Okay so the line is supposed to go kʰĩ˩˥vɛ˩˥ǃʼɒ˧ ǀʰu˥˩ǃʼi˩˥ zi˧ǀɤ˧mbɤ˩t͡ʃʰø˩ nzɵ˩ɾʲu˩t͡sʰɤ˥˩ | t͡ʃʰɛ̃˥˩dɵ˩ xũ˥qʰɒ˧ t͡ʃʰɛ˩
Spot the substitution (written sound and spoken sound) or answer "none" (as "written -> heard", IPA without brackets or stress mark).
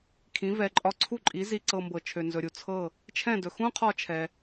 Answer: none